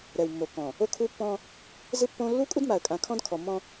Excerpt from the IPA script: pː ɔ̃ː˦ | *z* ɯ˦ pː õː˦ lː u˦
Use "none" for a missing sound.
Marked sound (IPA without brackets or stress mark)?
z